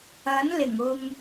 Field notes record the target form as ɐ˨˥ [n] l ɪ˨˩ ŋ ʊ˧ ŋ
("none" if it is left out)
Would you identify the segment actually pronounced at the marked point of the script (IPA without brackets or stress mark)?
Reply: n